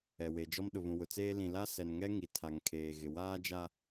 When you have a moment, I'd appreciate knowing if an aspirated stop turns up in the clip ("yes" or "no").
yes